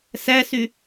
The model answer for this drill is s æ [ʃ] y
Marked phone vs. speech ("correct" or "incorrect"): incorrect